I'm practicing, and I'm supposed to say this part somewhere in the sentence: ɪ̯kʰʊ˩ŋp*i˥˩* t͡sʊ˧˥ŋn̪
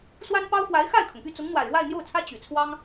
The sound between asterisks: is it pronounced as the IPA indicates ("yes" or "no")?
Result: no